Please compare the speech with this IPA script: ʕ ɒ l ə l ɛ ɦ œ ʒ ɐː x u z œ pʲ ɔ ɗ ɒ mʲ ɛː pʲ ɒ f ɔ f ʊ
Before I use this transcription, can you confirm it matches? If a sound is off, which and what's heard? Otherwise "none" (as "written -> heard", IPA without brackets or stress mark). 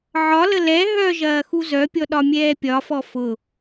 none